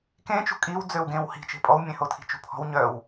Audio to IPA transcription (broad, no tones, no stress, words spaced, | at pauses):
kẽt͡ʃṳ kʼiw d͡zøwɡẽw hi̤t͡ʃe̤ pʼɔwmʲẽhotʰi̤ t͡ʃṳpʰɔ̤w ɲœw